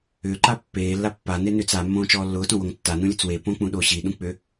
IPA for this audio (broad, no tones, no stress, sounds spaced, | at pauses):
ʏː ǃ a pː eː lː a pː a n e n ʏː t͡s a mː õː t͡ʃ ɔː lː ʊː t õ w o ŋ tː a n ũ lʲ ʊ t͡s w e p õ k͡p ũ ɗ o ɕ i ɗ ũ k͡p ʏ